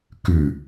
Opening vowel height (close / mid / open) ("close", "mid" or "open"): close